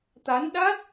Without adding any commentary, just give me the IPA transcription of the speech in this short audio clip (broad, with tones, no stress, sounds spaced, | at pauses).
t̪ a˨˦ n ɗ a˦˥ t̚